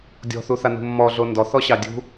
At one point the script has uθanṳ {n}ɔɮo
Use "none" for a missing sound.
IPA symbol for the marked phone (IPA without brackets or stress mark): mː